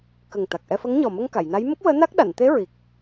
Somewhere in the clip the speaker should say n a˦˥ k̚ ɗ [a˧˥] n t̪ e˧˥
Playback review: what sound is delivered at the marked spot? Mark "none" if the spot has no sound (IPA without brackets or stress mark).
a˨˩˨